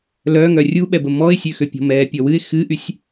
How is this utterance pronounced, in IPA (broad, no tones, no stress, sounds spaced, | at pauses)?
l œ ŋ œ rʲ u ɓ ɛ b ə m ɔ ɪ̯ sʲ ø x ø pʲ ɔ̤ m ɛː pʲ ɔ w ɨ ɪ̯ x ɨ ʔ y sʲ